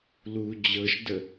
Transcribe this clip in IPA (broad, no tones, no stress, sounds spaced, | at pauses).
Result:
l u d͡ʑ ɤ ʃ d ə